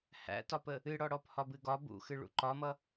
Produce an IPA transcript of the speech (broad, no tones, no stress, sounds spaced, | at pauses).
h æ̰ t ɒ p ə | ɨ ɽ ɔ ɽ ɔ p h ɒ b ɨ ɡ ɒ b ṵ x ɨ ɭ ṵ ǃ ɒ m ʌ